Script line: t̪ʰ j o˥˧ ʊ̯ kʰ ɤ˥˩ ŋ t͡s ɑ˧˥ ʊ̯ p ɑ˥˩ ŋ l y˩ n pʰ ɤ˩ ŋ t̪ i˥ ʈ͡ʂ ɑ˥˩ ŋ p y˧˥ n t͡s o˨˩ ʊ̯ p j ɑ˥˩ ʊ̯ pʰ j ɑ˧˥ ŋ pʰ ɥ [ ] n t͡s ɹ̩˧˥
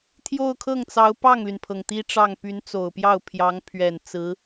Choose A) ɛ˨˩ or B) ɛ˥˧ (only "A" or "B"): A